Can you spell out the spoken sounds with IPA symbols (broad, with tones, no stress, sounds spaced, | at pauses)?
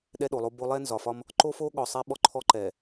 ɗ ɛ˦ ɗ o˨ lˠ o˦ b o˦ lˠ ɛ˦ n z ɒ˨ f ɒ˦ m | ǃ o˦ f o˦ ɠ ɔ˨ sˤ ɛ˦ ɓ ɔ˦ ǃʰ ɔ˦ ǃ ɛ˨